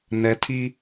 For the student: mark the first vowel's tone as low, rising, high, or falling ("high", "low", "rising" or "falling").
rising